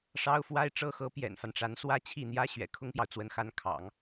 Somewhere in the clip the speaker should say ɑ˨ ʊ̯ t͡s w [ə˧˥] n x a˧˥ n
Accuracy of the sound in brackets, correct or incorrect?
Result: correct